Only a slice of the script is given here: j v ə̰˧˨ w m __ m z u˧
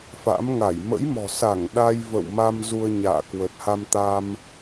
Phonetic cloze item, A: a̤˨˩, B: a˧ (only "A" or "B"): B